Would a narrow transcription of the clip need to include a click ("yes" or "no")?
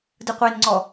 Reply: yes